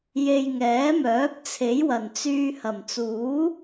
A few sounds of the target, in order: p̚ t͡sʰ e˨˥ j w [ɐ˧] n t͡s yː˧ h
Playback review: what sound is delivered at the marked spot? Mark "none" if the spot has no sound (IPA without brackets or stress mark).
ɐ˨˩